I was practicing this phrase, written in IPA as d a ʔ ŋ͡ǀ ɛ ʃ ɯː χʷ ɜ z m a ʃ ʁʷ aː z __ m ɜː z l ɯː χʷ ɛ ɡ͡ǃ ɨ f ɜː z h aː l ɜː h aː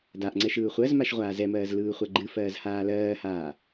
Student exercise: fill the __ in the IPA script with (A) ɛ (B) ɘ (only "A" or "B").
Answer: A